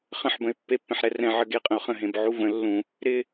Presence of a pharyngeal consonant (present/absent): present